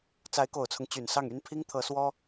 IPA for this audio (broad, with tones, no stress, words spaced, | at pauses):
t͡sa˧˥ɪ̯ko˨˩ʊ̯t͡sʰʊ˦ŋ t͡ɕy˨˩nsɑ˥˩ŋy˥n pʰi˥ŋt̪ʰɤ˧˥swɔ˥